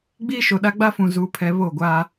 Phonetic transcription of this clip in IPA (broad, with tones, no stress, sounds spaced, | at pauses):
ɡ͡b iː˦ ʃ o˨ ɗ a˦ ɡ͡b a˦ f ũ˨ z uː˦ pʰ ɛ˦ β o˦˨ ɡʷ aː˦